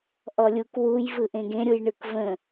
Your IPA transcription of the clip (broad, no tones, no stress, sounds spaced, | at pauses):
ʔ ɔ lʲ u k w u j v ɯ ʔ ẽ ɡ ẽ ɾʲ u j ɳ ɯ k v ə̃